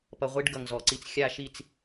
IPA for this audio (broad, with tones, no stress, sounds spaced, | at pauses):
p ʌ˧ ʁʷ i˦ ɖ ɡ ʌ˨ ŋ z ɔ˨ ǀ i˧ t͡s xʲ a˦ ʃ i˦˨ t͡s